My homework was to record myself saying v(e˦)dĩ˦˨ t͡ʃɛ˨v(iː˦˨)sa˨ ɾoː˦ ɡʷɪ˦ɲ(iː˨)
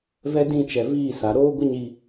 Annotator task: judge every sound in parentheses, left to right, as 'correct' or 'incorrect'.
incorrect, correct, incorrect

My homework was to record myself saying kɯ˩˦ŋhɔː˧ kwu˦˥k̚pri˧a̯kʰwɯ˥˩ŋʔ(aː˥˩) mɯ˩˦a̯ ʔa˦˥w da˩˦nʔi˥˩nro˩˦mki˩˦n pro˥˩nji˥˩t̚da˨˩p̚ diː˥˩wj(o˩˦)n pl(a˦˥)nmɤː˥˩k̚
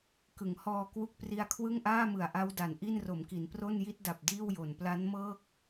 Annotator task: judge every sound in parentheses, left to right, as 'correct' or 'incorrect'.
correct, correct, correct

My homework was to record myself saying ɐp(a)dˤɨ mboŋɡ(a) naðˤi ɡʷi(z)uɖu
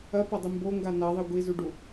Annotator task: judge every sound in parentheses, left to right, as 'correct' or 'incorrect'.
incorrect, correct, correct

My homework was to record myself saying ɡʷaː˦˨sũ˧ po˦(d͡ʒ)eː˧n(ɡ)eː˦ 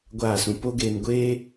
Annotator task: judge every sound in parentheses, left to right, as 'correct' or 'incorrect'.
incorrect, incorrect

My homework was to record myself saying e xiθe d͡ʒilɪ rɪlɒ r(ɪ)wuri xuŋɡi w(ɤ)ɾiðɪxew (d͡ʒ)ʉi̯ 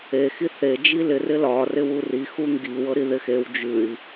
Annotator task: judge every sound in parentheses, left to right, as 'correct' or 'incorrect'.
correct, correct, correct

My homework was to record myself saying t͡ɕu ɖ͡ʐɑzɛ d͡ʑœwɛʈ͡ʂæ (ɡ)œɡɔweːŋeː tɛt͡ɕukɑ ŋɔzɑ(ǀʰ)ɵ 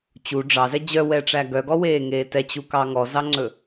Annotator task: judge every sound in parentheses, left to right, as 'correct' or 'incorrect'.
correct, incorrect

